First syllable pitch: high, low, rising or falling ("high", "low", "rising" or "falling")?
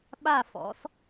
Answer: falling